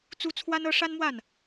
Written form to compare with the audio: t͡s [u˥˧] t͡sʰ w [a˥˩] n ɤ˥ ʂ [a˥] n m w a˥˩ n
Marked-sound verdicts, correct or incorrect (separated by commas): incorrect, incorrect, correct